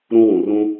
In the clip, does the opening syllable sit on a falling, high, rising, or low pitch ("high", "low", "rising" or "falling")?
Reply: high